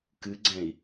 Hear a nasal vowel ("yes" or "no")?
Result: yes